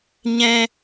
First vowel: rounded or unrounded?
unrounded